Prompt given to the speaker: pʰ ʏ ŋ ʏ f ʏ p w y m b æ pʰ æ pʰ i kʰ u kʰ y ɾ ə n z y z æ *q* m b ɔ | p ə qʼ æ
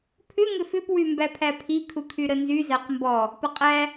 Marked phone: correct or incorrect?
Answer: correct